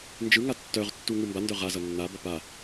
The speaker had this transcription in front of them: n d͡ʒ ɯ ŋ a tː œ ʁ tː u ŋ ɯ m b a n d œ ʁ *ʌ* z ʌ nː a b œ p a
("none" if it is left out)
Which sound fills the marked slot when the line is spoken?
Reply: a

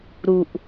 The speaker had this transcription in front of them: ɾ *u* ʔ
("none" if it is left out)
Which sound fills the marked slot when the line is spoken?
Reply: u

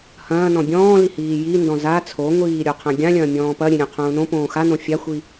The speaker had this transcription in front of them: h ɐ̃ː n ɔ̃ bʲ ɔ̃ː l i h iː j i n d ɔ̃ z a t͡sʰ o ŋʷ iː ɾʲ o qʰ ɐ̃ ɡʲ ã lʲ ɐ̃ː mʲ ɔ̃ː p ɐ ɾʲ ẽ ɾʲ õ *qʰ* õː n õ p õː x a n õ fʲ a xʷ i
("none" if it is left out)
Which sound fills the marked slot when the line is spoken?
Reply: qʰ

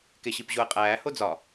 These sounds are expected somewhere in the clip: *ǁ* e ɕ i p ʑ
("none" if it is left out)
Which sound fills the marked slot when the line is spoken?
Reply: k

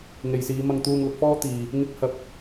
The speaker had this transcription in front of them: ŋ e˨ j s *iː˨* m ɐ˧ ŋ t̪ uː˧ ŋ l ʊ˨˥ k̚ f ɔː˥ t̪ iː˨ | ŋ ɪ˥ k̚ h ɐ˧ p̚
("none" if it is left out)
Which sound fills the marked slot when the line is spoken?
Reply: iː˨˧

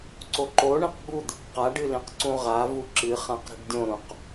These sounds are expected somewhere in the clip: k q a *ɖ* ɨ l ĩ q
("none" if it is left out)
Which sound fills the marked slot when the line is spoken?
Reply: ɖ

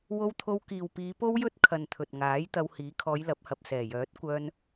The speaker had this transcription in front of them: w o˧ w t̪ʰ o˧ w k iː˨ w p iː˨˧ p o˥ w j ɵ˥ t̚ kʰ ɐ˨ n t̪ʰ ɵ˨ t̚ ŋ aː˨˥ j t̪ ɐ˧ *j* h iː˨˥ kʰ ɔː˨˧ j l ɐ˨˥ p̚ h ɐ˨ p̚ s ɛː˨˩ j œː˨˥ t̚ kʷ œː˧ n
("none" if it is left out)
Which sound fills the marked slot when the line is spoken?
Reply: w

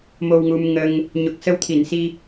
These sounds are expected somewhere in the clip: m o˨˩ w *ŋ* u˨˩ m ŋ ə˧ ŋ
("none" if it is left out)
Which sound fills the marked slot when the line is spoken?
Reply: ŋ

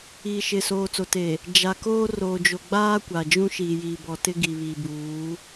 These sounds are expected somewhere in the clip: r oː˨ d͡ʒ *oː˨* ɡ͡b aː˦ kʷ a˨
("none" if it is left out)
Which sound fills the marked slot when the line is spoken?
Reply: o˨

